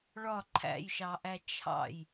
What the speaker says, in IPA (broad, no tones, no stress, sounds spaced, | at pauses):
ɭ ɒ ǃʰ æ̰ j ʃ ɑ ʔ æ t͡ʃʰ ɑ̰ j